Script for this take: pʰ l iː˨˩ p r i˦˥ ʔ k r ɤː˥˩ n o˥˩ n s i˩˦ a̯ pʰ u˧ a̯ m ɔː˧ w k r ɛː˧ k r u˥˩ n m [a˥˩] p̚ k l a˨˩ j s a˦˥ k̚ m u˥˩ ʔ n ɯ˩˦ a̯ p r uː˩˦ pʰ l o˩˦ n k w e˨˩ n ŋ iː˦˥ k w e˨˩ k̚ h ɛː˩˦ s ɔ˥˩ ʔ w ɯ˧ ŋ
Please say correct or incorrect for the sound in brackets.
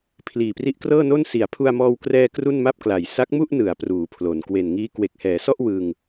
correct